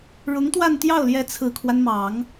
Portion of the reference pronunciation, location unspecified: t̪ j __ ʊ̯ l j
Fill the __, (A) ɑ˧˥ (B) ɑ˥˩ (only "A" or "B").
B